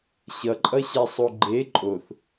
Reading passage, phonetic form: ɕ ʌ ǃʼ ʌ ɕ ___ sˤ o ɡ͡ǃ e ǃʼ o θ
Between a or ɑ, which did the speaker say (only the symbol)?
a